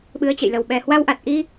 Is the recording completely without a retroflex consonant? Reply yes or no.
yes